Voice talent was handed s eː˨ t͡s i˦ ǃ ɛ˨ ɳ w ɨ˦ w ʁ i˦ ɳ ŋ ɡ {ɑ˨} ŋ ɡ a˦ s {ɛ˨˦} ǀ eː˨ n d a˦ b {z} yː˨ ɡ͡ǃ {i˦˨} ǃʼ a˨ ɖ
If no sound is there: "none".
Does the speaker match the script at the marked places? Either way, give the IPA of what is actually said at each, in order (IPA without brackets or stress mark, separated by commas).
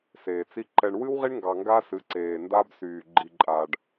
ɑ˨, ɨ˨˦, s, i˨